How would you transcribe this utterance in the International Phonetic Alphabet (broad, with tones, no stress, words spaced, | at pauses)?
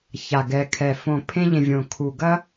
ça˨˩ɡɛ˨˩kʰɛ˨˩ fõ˨˩ pʰẽ˧ʎẽ˨˩ vʲõ˨˩ kʰu˨˩ ɡɐ˧